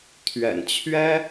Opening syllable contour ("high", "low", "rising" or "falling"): low